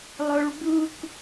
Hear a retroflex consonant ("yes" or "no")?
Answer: yes